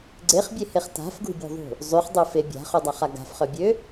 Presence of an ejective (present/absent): absent